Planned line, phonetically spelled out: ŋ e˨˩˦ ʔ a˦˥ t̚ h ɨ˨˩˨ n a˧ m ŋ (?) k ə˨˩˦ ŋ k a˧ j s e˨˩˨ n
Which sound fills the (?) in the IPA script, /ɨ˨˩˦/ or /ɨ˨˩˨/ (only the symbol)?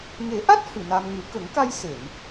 ɨ˨˩˦